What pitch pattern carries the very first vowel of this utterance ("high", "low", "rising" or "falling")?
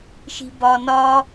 low